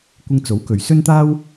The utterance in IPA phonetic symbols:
kʷ ɪ˧ ŋ t͡s o˨˥ w k ɵ˨ ɥ s ɵ˥ n t̪ aː˥ w

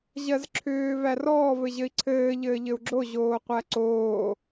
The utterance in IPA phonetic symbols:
ʑ ɜ z ǁʰ ʏː v æ r ɔː v ɘ ʑ ɘ i̯ ǀʰ ɘː ʎ ɘː ʎ ɘ u̯ ɡ͡ǁ o ʑ oː qʷ æ ǀ oː

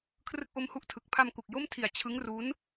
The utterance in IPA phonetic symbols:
kʰ r ɯ˦˥ k̚ ʔ o˦˥ m h u˦˥ ʔ tʰ ɯ˨˩ k̚ pʰ a˧ m k u˨˩ k̚ j o˥˩ m tʰ i˨˩ a̯ t͡ɕʰ ɯ˦˥ ŋ r u˦˥ n

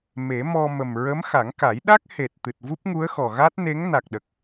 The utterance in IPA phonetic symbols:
m e˨˩˦ m ɔ˧ m ə˨˩ m ɹ ə˧˥ m x a˨˩˦ ŋ k a˨˩˦ j ɗ a˦˥ k̚ h e˨˩ t̚ t̪ ɨ˨˩ t̚ v u˦˥ p̚ ŋ u˧˥ ə̯ x ɔ˨˩ ɣ a˦˥ t̚ n e˧˥ ŋ n a˨˩ k̚ ɗ ə˨˩ k̚

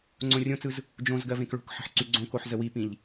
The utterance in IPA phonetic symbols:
ŋ͡ǀ õ rʲ õ t͡s ɯ z | d͡ʒ õ z ɡ ɜ v ẽ k ɭ o̤ k ħ ə̤ ħ ǀ y ɡ͡ǀ õ k o ħ z ə w i p ĩ ʎ

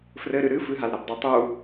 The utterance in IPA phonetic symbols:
f r ɘ ɾ ɨ ɾ ɨ f ɨ ɦ a l ɾ a b dˤ ɨ tˤ u

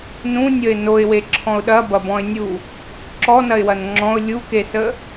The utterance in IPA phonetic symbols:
n ũ nʲ ə ɪ̯ n o ɪ̯ w e ǁʰ ɔ̃ ʊ̯ ɗ ɐ b ɐ b ɔ̃ ɪ̯ nʲ u | ǁ ɔ n ɐ ɪ̯ w ɐ n ŋ͡ǁ ɔ̃ ʊ̯ lʲ u k e s ə

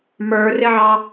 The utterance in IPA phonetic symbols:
m ə˞ r ɪ ʕ ɑ

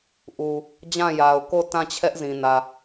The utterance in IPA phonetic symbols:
ʔ u˨ | d͡ʑ ã˦˨ j a˨ ʊ̯ k o˦˨ t ã˦˨ t͡ɕʰ ɛ˦ ʔ z ĩ˨ n ä˨

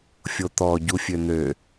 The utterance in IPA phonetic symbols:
fʲ o t̪ ɔ ɟ u fʲ ø n̪ ø

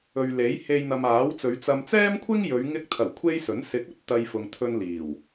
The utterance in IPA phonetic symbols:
ɵ˨ ɥ l e˨˥ j h e˧ j n̪ ɐ˨ m aː˨˥ w t͡s ɵ˨˧ ɥ t͡s ɐ˨ m t͡s ɛː˥ m kʷʰ ɪ˥ ŋ j ɵ˨˧ ɥ ŋ ɪ˧ k̚ t̪ʰ ɐ˨˩ w kʷʰ e˥ j s ɵ˨˥ n s ɪ˨˥ k̚ ɵ˥ t̚ t̪ ɐ˧ j f ʊ˨ ŋ t̪ʰ ɵ˧ n l iː˨˩ w

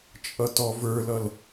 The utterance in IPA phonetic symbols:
t͡ʃʼ ʌ t ɔ v ə˞ l ʌ l

